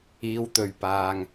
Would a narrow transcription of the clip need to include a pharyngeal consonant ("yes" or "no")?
no